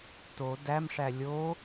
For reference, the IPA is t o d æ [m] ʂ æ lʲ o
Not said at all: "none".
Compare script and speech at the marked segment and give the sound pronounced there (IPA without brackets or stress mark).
m